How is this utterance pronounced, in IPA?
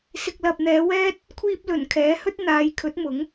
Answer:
s ɪ˨ k̚ l ɐ˨ p̚ n̪ ɛː˨˧ w ɛː˥ t̚ | kʷʰ iː˧ p̚ l ɵ˨˩ n kʰ ɛː˨˥ h ɵ˥ t̚ n̪ aː˨˧ j kʰ ɵ˨˥ t̚ m ʊ˨˥ ŋ

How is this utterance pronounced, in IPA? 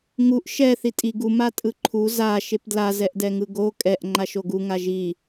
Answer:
ŋ u ʔ ʃ ɛ θ i tʼ i ɡ u m a tʼ ɯ ǃʰ u z a ʃ e p d l a z ɛ ʔ d ɛ ŋ ɯ ɡ o kʼ ɛ ʔ ŋ͡ǃ a ʃ o ɡ u ŋ a ʒ i

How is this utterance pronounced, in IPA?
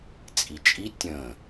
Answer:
t͡sʼ i t͡ʃʼ i tʲ ə̃ː

